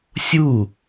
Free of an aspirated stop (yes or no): yes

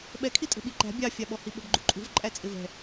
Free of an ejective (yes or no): no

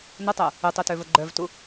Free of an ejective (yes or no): yes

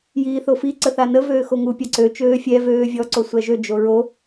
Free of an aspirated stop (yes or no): yes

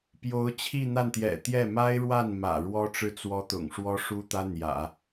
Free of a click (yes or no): yes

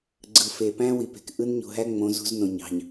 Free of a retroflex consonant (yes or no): yes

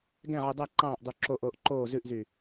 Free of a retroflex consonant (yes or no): yes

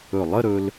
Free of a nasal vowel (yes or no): yes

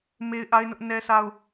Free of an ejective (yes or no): yes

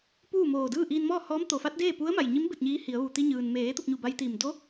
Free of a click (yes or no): yes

